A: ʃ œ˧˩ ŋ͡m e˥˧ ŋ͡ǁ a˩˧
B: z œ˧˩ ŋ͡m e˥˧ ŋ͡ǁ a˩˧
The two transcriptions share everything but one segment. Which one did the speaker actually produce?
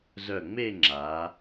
B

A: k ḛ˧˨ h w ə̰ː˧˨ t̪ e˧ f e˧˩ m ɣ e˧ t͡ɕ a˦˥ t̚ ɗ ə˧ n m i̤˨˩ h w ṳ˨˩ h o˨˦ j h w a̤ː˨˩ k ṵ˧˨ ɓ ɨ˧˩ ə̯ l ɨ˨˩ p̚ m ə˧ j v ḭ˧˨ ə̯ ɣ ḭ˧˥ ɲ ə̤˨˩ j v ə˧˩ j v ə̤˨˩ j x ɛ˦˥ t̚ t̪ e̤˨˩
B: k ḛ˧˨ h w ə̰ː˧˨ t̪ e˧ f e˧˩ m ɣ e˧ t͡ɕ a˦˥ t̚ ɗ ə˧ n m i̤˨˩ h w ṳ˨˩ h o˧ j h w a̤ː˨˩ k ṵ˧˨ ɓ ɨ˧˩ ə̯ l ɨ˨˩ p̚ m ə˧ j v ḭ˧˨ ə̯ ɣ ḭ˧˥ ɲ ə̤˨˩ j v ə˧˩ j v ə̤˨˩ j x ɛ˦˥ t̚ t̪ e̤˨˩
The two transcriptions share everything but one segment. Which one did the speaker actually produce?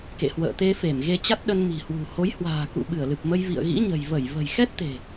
A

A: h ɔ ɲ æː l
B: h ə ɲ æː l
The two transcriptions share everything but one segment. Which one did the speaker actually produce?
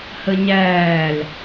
B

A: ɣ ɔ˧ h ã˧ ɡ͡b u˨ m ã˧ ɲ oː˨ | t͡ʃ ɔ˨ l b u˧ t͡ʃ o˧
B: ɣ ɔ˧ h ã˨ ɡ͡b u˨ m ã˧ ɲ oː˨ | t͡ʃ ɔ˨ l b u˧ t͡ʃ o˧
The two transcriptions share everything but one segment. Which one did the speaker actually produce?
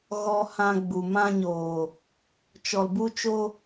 A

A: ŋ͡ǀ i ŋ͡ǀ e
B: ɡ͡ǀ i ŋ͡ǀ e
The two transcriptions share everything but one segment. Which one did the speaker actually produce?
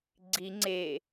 B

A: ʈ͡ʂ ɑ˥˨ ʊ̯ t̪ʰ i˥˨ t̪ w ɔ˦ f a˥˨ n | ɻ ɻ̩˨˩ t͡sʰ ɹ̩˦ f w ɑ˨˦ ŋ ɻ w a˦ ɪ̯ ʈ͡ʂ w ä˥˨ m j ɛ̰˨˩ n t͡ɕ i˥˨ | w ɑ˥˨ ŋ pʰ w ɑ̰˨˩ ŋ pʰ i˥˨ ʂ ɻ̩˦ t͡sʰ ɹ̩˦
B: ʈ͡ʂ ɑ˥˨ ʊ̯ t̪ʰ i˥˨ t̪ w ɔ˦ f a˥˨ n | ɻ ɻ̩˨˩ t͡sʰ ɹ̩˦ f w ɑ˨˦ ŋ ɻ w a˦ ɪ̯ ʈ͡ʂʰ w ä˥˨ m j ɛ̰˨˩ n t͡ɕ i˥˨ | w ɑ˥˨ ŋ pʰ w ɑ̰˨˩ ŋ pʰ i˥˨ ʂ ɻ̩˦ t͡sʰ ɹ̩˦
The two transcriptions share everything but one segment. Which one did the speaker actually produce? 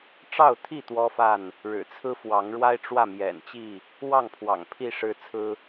A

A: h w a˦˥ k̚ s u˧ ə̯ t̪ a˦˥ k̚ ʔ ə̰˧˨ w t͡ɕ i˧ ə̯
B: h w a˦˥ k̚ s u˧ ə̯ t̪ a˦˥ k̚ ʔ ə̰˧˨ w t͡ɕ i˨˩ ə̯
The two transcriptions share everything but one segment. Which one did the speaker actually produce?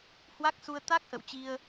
A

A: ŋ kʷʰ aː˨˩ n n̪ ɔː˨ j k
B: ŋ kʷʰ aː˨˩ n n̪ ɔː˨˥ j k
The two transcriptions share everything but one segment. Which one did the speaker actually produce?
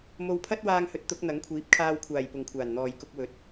A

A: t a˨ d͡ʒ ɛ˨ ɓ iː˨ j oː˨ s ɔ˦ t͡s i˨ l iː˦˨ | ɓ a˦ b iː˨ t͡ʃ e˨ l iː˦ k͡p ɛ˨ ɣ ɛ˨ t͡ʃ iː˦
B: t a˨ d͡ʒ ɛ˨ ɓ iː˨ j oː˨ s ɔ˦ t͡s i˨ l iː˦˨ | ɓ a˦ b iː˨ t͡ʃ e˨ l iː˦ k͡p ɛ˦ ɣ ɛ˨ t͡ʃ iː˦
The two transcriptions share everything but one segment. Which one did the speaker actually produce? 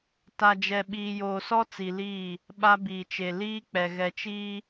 A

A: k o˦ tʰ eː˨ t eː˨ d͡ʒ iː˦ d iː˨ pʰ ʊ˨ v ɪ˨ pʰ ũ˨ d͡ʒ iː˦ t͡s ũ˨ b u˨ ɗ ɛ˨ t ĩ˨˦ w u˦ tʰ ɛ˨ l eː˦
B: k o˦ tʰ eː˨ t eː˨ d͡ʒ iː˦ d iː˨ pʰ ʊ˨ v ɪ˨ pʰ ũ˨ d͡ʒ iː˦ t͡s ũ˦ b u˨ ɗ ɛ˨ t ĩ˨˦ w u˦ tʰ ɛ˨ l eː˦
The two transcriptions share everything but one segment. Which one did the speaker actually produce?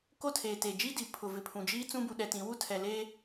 B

